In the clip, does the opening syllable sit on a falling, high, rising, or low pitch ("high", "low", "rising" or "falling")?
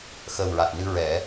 low